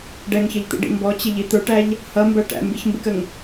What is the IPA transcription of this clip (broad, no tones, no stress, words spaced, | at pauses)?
ɖɛŋçʌʎt̪ḭɖḭ mbɔt͡ɕɪʎi t̪ə˞ʈæʎ | hʌmbæ ʈæ̰mbiçmbɪkəŋ